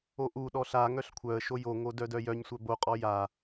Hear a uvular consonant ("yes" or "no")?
yes